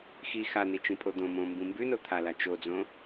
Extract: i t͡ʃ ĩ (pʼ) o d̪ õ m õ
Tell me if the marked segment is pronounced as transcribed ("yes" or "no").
yes